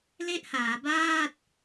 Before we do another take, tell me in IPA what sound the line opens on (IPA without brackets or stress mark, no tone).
l